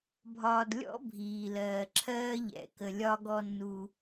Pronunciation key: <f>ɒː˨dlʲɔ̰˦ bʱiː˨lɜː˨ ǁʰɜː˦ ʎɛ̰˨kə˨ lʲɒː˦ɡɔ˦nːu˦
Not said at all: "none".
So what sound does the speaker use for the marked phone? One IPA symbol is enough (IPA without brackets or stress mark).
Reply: bʱ